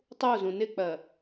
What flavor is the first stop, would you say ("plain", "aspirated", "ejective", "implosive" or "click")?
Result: plain